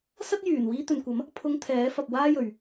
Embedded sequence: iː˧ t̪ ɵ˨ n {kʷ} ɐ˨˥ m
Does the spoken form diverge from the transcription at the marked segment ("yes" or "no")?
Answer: no